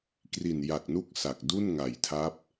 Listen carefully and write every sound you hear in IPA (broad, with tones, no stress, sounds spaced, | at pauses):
k r i˨˩ n j a˨˩ k̚ n u˦˥ k̚ s a˨˩ k̚ d u˥˩ n ŋ a˨˩ j tʰ a˦˥ p̚